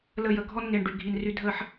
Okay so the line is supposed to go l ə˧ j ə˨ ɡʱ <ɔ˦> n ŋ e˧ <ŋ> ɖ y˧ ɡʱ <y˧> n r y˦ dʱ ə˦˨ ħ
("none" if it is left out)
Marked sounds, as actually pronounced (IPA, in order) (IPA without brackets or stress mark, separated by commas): ɔ˦, ɳ, i˧